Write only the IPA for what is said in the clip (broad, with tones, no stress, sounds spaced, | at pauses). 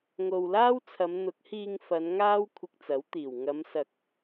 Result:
ŋ o˨ w l aː˥ w t͡sʰ ɐ˨˧ m n̪ ʊ˨˥ k̚ h iː˧ ŋ f ɐ˨˧ n ŋ aː˥ w kʷʰ ɪ˧ k̚ t͡s ɐ˨˥ w t̪ iː˨˩ w ŋ ɐ˨˧ m s ɐ˨ k̚